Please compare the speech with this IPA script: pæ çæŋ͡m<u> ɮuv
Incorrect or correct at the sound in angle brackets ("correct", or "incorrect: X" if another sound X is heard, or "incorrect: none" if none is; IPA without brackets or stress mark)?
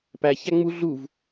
correct